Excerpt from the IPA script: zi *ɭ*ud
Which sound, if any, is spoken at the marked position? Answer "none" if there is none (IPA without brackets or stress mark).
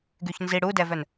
ɽ